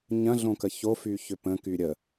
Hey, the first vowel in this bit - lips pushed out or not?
no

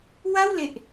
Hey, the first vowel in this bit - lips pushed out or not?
no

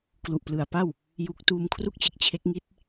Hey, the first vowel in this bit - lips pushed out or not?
yes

